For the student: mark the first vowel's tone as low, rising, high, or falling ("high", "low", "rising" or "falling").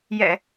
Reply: low